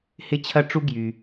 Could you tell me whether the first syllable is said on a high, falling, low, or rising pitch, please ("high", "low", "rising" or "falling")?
high